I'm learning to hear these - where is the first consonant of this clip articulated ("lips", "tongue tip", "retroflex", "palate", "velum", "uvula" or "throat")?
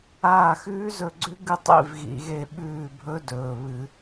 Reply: velum